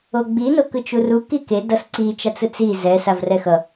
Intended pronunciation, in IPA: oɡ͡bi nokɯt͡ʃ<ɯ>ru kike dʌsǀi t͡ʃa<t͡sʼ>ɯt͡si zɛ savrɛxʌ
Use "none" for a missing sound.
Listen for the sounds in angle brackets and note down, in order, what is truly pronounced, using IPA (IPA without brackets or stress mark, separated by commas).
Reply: u, t͡s